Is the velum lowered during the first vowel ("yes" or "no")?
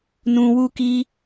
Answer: yes